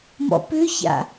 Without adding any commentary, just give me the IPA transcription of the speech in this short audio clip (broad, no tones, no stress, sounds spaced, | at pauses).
m ɔ̰ p ʏ ç a̰